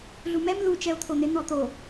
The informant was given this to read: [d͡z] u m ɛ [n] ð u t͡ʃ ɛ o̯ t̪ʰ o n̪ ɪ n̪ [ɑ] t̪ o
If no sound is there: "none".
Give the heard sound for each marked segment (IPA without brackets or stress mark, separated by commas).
ɮ, m, ɔ